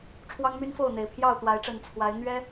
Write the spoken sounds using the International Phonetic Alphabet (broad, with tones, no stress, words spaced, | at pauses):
ʈ͡ʂʰwɑ˦ŋmy˦nfo˥˨ʊ̯n̪e˨˩ɪ̯ pʰjɑ˥˨ʊ̯t̪wa˨˦ɪ̯ʈ͡ʂə˨˩n t͡sʰwa˨˦ɪ̯ n̪ɥɛ˦